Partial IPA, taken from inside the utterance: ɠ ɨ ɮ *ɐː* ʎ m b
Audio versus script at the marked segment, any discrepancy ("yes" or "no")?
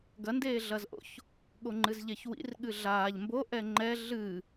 yes